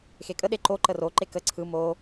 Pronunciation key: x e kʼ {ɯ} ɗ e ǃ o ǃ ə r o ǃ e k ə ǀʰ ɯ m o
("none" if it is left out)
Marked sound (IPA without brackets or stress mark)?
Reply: ə